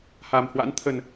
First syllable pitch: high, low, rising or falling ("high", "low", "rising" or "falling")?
low